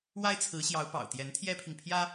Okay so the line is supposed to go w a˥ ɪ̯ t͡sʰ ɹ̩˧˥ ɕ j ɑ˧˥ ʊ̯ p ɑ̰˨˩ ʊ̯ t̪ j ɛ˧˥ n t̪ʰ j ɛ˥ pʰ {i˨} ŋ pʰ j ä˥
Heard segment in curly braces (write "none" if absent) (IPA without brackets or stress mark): i˨